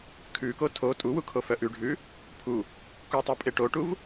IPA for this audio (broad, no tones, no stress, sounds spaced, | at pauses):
kʰ ʉ k o tʰ o tʼ u w u kʰ o f œ ʔ ʉ ɖʱ ʉ | pʰ u | k u tˤ e pʼ e ʈ o ʈ u v